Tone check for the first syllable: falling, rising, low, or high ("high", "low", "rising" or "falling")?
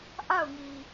falling